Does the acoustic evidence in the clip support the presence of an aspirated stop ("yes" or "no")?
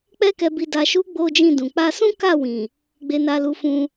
no